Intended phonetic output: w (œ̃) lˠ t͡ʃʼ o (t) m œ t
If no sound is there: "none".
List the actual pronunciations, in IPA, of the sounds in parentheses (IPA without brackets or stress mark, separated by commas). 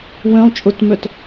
œ̃, t